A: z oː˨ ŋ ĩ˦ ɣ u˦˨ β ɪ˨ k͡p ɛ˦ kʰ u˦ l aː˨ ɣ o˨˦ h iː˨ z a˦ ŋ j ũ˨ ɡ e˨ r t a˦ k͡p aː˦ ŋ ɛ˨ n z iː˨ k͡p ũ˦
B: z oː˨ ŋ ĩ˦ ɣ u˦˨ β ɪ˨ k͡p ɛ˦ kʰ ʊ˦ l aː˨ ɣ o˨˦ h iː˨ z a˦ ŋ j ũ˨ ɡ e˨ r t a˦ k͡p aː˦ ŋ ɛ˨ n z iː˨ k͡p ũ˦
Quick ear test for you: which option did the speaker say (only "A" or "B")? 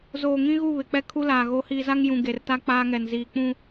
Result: A